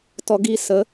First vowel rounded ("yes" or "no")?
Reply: yes